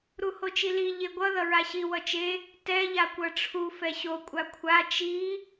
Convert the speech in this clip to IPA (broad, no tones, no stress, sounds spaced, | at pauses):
ɾ u h o t͡ʃ i l i ʎ e ɡʷ ʌ ð ʌ ɹ a ɕ i w ʌ t͡ʃ e | t ɛ ʎ a kʷ ʌ ʈ͡ʂʰ u f ɛ ɕ o kʷʼ a kʷʰ a t͡ʃ i